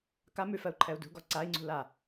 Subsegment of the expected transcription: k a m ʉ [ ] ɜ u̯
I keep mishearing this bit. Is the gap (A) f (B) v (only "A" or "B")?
A